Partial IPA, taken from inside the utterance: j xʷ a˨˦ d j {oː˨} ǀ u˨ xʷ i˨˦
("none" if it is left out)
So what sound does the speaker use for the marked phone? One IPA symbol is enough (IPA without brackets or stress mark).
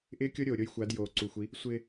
oː˨